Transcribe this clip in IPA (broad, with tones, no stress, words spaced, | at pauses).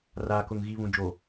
raː˨kʊ˨ŋ ɣi˨βũ˨ d͡ʒo˨